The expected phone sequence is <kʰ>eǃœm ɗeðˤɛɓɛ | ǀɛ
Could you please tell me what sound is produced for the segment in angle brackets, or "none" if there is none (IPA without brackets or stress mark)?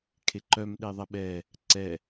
kʰ